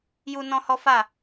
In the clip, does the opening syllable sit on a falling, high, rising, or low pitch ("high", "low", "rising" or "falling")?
high